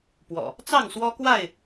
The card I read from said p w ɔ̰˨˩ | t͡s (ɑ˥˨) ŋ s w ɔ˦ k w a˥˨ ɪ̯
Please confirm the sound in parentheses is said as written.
yes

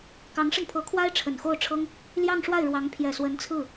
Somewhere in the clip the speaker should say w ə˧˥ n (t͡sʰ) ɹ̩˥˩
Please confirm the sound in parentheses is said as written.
yes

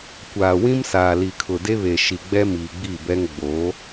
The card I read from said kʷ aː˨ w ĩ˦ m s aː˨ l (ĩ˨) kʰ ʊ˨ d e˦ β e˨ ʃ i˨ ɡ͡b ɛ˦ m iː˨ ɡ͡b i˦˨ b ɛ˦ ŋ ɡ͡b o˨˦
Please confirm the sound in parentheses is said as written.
no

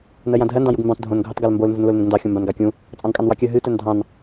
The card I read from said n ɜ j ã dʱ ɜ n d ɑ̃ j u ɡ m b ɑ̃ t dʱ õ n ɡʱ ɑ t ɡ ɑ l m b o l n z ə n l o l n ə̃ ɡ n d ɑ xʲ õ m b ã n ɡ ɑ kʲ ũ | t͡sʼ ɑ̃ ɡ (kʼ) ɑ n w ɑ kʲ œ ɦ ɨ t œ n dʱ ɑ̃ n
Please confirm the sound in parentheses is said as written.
yes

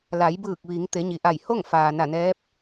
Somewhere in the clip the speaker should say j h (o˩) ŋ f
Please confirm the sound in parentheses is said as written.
no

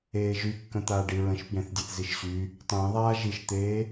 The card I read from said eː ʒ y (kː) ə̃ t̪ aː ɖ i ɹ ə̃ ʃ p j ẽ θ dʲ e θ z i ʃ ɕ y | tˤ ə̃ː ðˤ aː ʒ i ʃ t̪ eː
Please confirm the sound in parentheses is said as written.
yes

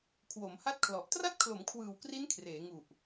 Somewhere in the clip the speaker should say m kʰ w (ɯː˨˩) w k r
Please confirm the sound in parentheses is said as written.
yes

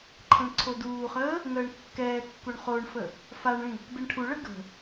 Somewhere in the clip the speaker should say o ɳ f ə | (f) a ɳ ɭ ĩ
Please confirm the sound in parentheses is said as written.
yes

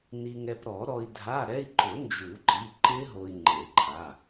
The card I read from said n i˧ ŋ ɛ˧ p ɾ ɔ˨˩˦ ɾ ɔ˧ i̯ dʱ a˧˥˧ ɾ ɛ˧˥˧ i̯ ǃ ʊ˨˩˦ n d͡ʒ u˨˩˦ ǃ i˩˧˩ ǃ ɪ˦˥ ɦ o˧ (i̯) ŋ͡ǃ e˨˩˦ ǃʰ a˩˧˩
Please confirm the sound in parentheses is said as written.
yes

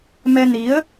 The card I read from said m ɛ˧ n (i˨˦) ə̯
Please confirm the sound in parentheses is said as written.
yes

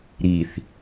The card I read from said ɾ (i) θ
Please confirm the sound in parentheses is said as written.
yes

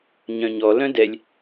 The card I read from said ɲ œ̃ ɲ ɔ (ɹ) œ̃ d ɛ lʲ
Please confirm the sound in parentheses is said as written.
no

